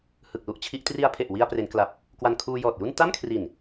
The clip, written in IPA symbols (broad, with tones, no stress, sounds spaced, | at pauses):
h ɯ˨˩ k̚ l u˥˩ ʔ t͡ɕʰ i˦˥ ʔ t r i˧ a̯ pʰ e˨˩ ʔ w i˧ a̯ p r e˩˦ n k l a˨˩ p̚ | k w a˧ n kʰ uː˧ j ɔː˨˩ t̚ j u˥˩ n t a˥˩ m kʰ r i˨˩ n